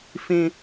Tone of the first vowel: high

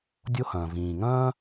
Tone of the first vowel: high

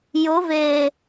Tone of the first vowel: rising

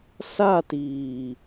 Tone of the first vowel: falling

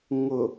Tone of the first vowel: low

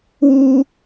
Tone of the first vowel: high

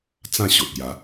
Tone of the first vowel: falling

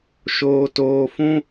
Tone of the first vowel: low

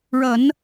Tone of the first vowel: low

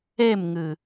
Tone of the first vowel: falling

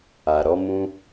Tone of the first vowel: low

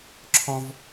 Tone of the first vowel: high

